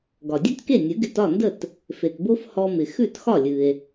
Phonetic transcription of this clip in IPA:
ɡɒ˩dʲʉ˥tke˥˩ nʲɨ˩˥ɡɪ˧t ɒ˥˩ndə˥˩t | fe˩tbo˥f hɔ˧mɪ˩ xʉ˥˩txɒ˥˩lʲɨ˩e̯

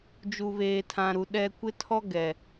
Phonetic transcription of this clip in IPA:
d͡ʒu˨βeː˨tʰã˨ɾu˨ ɗɛ˨kʷɪ˦tʰɔ˦ ɡɛ˨

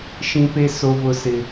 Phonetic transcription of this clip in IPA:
ʃĩ˦pe˦ so˦vʊ˦sɪ˦

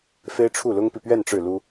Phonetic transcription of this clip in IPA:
fe˥ɪ̯ʈ͡ʂʰu˥˩lʊ˥ŋpi˨ pɥɛ˥˧n ʈ͡ʂɻ̩˥˩lu˥

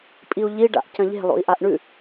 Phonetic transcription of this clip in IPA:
pʼiu̯ʎiɖa̰ʔ cɐ̃ʎe̤lˠo̰i̯ ʔaʔɳʉ

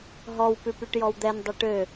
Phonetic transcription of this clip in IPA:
ɦɔw pʉpyʈjɔwd̪ɛn dˤeʈø

